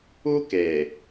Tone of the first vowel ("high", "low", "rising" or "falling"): high